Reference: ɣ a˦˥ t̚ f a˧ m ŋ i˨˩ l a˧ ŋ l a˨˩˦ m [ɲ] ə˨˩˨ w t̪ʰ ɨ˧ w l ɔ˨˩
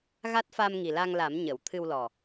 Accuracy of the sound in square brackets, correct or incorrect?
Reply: correct